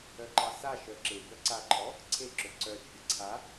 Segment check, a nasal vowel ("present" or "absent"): absent